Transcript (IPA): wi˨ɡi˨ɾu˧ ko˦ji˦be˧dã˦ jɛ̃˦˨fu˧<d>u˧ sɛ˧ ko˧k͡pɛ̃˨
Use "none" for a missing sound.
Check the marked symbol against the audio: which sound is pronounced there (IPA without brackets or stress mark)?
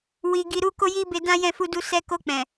d